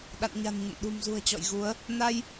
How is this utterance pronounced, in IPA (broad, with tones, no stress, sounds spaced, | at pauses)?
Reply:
ɗ a̰˧˨ n ɲ a̤˨˩ n ɲ ə̰˧˨ n ɗ ṳ˨˩ m z ṳ˨˩ ə̯ t͡ɕ ɔ̰˧˨ j ɣ u˨˦ ə̯ | n a˧ j